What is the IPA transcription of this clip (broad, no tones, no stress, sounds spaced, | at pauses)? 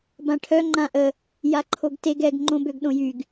b ã ʈʰ œ ŋ͡ǃ ã ʔ ə | j a ǃʰ o ɡ t e ɡ ɛ ɡ ŋ͡ǃ õ b ø ɡ ɗ õ j y ɡ